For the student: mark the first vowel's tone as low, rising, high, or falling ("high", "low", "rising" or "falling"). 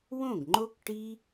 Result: falling